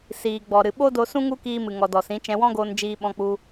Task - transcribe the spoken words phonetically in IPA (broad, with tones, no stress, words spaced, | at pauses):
siː˨ɡ͡bɔ˨ ɾɨ˨ɓo˦do˧sũ˦ ŋu˦kiː˧mɨ˨ ŋɔ˨dɔ˨sĩ˨˦ t͡ʃɛ̃˧wɔ̃˦ɡoː˧n d͡ʒiː˦ ɓɔ̃˧k͡pu˧